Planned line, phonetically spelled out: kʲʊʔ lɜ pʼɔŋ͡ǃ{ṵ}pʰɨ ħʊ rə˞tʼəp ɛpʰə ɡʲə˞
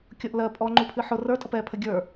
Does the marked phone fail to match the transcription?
yes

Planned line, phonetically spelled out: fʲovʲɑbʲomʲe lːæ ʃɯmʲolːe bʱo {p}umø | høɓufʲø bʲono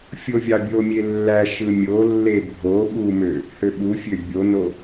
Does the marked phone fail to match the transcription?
yes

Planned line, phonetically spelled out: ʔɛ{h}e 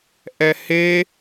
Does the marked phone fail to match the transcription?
no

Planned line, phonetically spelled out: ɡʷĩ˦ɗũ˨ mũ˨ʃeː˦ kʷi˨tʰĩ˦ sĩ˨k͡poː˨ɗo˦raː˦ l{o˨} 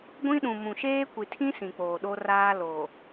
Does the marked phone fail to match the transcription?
no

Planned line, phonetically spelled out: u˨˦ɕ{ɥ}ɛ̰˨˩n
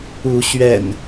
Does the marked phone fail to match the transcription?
no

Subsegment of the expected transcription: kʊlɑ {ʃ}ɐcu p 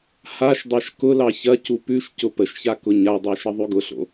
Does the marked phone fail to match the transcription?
yes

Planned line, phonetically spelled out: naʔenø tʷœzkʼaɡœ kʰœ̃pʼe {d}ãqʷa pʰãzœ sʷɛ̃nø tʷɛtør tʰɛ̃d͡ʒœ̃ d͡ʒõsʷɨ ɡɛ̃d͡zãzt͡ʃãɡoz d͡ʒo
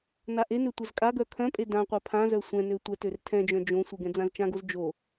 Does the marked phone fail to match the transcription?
no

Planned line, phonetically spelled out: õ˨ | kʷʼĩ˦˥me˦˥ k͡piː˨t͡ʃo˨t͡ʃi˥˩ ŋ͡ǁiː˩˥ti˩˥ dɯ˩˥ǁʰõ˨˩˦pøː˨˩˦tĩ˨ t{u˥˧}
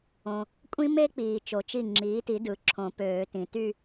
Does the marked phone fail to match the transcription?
yes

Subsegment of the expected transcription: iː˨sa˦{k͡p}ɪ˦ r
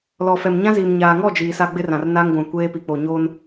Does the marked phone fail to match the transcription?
yes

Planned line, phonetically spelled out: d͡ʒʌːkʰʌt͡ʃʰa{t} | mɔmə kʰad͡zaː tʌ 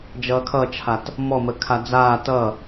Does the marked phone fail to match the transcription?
no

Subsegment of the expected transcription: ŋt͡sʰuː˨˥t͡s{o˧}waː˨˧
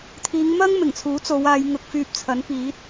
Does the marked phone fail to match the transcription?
yes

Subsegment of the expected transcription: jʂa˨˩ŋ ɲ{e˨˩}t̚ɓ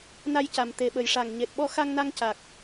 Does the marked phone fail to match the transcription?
no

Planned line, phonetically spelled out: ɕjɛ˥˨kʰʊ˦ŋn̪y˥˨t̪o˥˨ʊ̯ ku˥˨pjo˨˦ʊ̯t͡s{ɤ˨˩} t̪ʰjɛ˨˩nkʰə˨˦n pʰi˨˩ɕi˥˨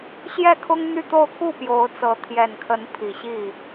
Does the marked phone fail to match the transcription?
yes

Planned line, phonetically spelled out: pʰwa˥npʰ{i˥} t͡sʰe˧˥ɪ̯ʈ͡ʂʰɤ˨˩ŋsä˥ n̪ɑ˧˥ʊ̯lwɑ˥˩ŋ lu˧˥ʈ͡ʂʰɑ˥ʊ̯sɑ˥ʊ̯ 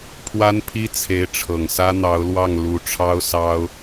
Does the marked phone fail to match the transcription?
no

